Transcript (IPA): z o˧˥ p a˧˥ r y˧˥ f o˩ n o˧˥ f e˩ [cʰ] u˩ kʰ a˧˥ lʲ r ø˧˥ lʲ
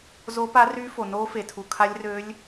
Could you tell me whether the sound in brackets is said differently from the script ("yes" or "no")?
yes